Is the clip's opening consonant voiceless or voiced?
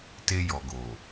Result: voiceless